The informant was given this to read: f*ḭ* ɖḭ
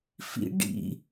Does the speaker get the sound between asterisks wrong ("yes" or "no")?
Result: no